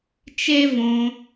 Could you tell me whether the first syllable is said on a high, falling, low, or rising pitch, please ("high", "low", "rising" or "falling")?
high